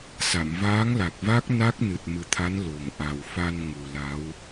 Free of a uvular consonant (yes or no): yes